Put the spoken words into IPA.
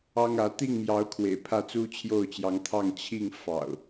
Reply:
ɑ˦ ŋ ä˨˦ t̪ i˥˨ ŋ m j ɑ˨˦ ʊ̯ kʰ w ḛ˨˩ ɪ̯ pʰ ä˥˨ t͡s u˦ t͡ɕʰ j o˥˨ ʊ̯ t͡ɕ j ɑ˨˦ ŋ t̪ʰ ɑ˥˨ ŋ t͡ɕʰ i˥˨ ŋ f ɑ̰˨˩ ʊ̯

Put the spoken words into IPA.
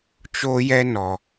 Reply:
t͡ʃ o˧ j ɛ˧ n ɔ˨

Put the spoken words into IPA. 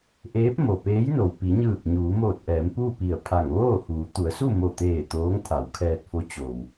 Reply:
ʔ eː˧˥ p̚ m o˩ p eː˧˥ j n o˩ w p i˩˧ ɲ ɯː˧˩ k̚ ɲ uː˩˧ m oː˧˩ t̚ ʔ ɛː˩˧ m p uː˥˨ p i˧˩ ə̯ pʰ a˧˩ ŋ ʋ oː˥˨ h uː˩˧ t̪ u˩˧ ə̯ s u˥˨ m o˧˩ t̪ eː˧˩ t̪ oː˧˥ ŋ t̪ʰ a˩˧ w kʰ ɛː˧ t̚ f o˧˥ t͡ɕ o˩ w

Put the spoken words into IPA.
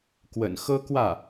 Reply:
k w ə̰˨˩ n x ɤ˥ k w ä˥˩

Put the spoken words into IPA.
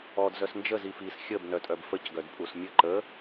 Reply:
ɔ d z œ s n d͡ʒ ə z i f i s xʲ ə b n œ tʼ œ b f ə c ɡ œ d pʼ u s mʲ ə ǃ ə

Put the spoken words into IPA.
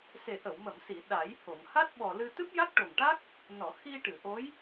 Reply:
s e˨˩ ʔ ə˨˩˨ w m ə˨˩˨ m s i˨˩˨ ɗ a˨˩˦ j h o˨˩˨ ŋ h a˦˥ t̚ ɓ ɔ˨˩ l ɨ˧ t̪ ɨ˦˥ p̚ j a˦˥ k̚ ʈ o˨˩ ŋ ʈ a˦˥ k̚ | n ɔ˨˩˨ x i˧ ʈ ɨ˨˩˨ ʔ o˧˥ j

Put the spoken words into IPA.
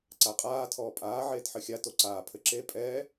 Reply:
ǀ a qʼ aː tʰ ɔː pʼ aː ʕ eː t ħ ɘ xʲ a t o ǀ aː pʰ ɘ ǁ e pʼ ɛː

